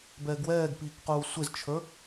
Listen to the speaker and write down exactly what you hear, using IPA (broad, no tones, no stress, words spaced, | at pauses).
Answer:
bɛːɡwɛːɡpiːkquː sʷɪzt͡ʃʰə˞